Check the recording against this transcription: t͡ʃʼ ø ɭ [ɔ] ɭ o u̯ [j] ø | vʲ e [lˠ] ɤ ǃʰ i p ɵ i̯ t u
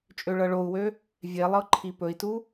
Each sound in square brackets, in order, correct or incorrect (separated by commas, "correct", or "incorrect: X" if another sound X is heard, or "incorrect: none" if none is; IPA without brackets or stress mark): incorrect: ɤ, incorrect: w, correct